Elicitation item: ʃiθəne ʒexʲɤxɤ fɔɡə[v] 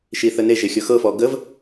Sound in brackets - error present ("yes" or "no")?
no